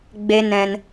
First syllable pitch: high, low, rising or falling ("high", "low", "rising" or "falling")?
high